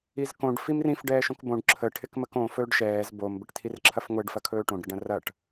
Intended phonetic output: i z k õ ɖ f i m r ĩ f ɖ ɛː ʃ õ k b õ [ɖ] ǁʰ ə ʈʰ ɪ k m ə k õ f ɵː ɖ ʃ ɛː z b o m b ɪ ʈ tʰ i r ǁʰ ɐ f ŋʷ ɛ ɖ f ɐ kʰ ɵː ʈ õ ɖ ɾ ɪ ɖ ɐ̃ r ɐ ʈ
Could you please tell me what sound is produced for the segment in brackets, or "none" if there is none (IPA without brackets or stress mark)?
ɖ